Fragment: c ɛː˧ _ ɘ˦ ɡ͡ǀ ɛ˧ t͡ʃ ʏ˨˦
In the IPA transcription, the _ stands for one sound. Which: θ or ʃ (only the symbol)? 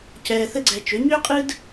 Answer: θ